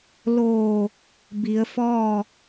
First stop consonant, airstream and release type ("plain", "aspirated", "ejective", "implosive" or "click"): plain